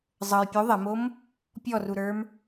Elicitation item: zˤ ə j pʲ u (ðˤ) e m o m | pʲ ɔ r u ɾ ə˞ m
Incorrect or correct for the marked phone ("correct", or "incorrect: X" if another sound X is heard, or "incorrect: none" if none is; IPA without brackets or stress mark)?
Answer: correct